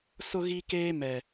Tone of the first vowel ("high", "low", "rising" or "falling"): high